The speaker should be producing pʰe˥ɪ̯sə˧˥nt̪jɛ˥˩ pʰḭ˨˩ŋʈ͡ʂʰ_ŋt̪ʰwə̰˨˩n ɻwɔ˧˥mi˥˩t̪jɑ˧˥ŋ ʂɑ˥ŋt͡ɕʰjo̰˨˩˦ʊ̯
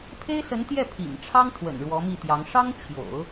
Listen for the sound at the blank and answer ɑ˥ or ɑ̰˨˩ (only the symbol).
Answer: ɑ˥